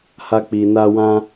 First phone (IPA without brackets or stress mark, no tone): h